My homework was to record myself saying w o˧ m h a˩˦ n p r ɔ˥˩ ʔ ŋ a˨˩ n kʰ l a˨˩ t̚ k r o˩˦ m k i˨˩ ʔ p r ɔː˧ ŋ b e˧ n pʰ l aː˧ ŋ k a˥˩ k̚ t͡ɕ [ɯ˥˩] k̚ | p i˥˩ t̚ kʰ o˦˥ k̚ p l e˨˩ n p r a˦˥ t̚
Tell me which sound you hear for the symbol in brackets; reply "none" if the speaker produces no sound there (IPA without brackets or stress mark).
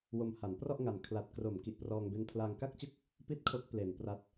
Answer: ɯ˥˩